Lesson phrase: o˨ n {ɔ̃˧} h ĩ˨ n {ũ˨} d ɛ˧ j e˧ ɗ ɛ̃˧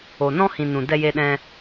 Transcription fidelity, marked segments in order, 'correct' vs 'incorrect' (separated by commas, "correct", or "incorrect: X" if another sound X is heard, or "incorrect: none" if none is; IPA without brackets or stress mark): correct, correct